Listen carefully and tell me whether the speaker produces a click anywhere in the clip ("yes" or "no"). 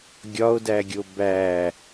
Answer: no